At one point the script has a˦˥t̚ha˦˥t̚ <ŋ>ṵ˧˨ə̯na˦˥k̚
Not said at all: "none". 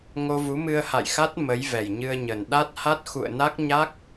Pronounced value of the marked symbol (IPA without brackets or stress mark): x